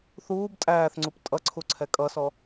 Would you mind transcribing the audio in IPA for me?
θuːb tʼæːθŋ͡ǀup tʼʌǀʰuǀʰɛ kʼʌsɔ

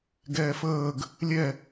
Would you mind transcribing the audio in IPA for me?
ɡɛːfəːɡ | lʲɛ

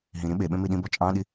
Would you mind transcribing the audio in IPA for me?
ɦĩ ɾĩɓeɓẽ miɗĩbɔ t͡ʃʼɑ̃ɗi

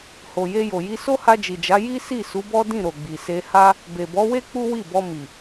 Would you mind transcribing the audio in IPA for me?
ho˨je˧jo˨ji˧ so˦ha˧d͡ʒi˨d͡ʒa˨˦ ji˦si˦˨su˨˦ bɔ˦dĩ˦˨ ɾo˨ɡ͡bi˨se˧ ha˦ | be˨bɔ˨˦we˦ k͡pu˦wi˦˨bɔ˧mi˨

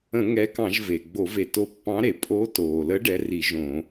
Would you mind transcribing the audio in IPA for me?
ə̃˧˩˧ ŋɛ˨˥kɑ̃˧˩˧ʒ ve˩ɡ͡bo˧˩˧ve˩ to˨˥pːɑ̃˨˥ɾe˩ pʼo˨˥toː˩lə˨˥ ɖɛ˨˥ri˧˩˧ʒõ˧˩˧

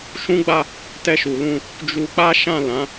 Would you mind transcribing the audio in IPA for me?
ʃũ˦ɡ͡ba˦˨ | tɛ˧ʃu˨lũ˧ | d͡ʒu˧ k͡pa˦ʃã˦˨lã˨˦

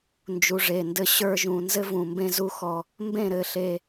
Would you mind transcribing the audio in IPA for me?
nd͡ʒu˨ʐe˨ndɘ˦ ɕə˞˦ʒũ˨ nzɘ˦vũ˨mbẽ˦ zu˦xɔ˦ | mbẽ˦˨ɾɘ˨ ɬe˦

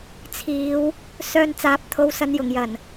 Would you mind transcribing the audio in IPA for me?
t͡sʰiː˨˧w | sœː˧nt͡saː˨˥p̚t̪ʰo˨˧w sɐ˨njʊ˨˩ŋ jɐ˨˩n

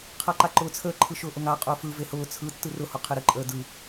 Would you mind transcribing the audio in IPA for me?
qʰaǃaǃʊːt͡sʰəː ǃʰɯʃʊːʔʊŋa qʼʊːfɯ vehʊː t͡sʰɯ tːɯrʊ hʊqʰɪɾə ǃʼəːdɯ

